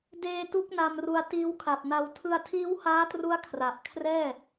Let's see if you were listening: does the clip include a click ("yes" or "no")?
no